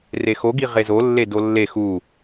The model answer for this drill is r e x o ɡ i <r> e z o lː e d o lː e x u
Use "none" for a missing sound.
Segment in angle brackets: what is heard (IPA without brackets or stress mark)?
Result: ʁ